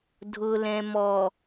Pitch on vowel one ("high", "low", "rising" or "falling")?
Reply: low